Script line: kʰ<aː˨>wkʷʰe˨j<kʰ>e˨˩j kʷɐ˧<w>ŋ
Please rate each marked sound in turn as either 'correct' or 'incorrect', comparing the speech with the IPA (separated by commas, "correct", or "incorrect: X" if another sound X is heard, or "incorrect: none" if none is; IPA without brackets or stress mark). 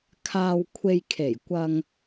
correct, correct, incorrect: none